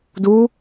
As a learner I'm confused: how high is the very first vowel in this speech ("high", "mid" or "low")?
high